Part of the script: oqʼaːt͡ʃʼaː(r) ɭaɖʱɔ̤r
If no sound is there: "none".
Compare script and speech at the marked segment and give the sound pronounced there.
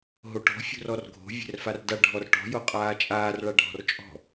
r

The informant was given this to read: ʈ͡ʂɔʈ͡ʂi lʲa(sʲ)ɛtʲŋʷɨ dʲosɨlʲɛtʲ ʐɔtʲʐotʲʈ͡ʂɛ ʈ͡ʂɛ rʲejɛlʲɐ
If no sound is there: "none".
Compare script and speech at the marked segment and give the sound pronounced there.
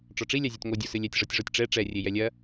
zʲ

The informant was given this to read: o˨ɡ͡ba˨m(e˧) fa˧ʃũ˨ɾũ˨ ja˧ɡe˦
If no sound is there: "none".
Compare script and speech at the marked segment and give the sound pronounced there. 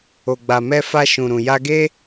ɛ˧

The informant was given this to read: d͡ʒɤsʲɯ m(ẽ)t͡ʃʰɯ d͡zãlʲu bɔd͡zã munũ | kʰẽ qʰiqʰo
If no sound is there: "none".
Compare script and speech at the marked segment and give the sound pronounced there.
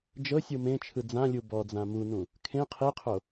ẽ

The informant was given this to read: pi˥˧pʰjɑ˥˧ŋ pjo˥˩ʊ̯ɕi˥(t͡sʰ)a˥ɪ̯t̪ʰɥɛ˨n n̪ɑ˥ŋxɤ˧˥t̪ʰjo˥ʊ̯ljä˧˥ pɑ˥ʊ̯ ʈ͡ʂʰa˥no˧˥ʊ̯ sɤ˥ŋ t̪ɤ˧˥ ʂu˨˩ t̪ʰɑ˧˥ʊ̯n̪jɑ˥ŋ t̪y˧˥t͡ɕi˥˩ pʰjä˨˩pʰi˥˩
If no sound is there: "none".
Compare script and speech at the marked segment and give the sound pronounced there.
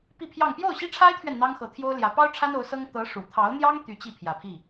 ʈ͡ʂʰ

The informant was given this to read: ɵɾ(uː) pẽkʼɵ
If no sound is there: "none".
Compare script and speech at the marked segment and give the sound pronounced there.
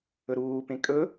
uː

